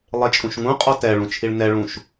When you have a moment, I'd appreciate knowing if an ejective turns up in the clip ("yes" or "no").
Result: yes